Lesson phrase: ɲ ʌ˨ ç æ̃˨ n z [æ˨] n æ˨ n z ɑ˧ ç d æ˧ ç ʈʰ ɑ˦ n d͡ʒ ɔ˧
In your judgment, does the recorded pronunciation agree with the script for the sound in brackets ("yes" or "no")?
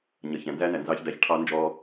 no